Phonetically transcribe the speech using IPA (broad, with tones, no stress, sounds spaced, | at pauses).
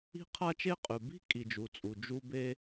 i̤˦ qʰ a˦ t͡ʃ e˦ qʼ ʉ˩ b i̤˥ kʼ i˩ d͡ʒ u˩ t͡sʼ u˩ d͡ʒ u˦ b e˦